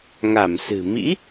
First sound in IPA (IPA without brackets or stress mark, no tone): ŋ